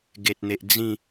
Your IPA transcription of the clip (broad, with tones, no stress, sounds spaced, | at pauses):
ɡ e˨ t̚ n̪ e˨ ʔ d͡z ĩ˥˧